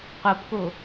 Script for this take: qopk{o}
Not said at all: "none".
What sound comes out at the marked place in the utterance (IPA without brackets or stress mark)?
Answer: o